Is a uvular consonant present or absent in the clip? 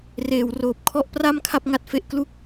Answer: absent